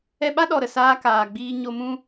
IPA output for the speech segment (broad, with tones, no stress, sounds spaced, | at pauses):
ɛ˧ ɓ a˦ ɗ ɔ˨ ɾ ə˨ s aː˧ k aː˨ ɡ͡b iː˧ ɲ o˧ m ũ˦